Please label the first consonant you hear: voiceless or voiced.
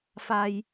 voiceless